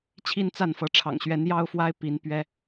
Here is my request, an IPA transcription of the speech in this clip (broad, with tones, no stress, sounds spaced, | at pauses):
t͡ɕʰ i˥˧ n t͡s a˥˩ n f ɤ˧˥ ʈ͡ʂʰ ɑ̰˨˩ ŋ ɕ ɥ ɛ˧˥ n j ɑ˥ ʊ̯ f w a˥ ɪ̯ p i˧˥ n p ɥ ɛ˥